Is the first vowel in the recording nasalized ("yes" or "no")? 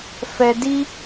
no